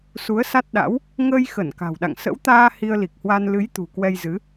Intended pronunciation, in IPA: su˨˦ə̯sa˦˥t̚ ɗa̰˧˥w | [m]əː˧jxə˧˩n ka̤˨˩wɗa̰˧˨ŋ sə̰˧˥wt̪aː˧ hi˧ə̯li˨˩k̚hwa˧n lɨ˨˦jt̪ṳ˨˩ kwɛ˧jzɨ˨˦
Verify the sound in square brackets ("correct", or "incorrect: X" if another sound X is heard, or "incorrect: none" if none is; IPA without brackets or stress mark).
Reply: incorrect: ŋ